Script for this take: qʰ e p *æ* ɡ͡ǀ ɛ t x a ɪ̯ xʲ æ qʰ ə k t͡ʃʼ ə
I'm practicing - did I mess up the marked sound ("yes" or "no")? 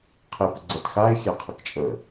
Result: yes